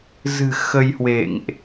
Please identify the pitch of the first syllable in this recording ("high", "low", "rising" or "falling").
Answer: low